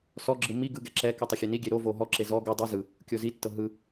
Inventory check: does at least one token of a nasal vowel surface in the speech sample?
no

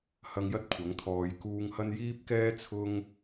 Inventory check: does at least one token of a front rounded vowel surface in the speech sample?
no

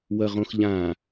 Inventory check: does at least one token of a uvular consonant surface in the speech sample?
yes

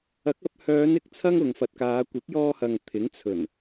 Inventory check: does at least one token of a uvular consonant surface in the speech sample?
no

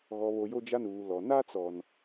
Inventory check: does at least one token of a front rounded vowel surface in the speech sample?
no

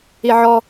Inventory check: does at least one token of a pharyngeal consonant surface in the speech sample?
yes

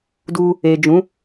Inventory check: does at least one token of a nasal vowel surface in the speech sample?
yes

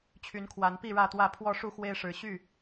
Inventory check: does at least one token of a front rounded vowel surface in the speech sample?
yes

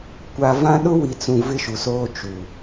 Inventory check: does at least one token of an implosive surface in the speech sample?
yes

